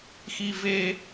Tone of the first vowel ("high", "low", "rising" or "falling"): high